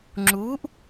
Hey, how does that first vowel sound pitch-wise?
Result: rising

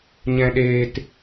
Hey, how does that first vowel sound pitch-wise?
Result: low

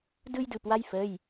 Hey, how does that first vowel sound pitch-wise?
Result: high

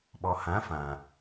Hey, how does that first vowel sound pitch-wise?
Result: low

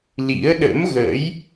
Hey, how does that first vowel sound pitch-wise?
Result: rising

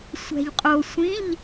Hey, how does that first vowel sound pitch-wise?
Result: low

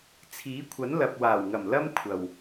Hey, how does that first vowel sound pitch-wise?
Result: rising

